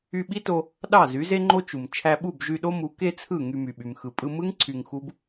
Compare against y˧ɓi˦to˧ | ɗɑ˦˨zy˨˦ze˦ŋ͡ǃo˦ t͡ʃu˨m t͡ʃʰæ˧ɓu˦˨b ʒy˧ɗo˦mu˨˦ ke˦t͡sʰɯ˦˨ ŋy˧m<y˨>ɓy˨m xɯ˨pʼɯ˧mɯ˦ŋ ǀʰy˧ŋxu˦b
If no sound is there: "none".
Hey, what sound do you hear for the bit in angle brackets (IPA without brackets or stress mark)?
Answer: y˨